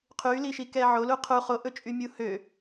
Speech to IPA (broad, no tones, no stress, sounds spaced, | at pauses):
qʰ y l i ʃ i k ɛ ʕ o l u qʰ u χ o ʔ ɵ t͡ʃʼ y mʲ u h ø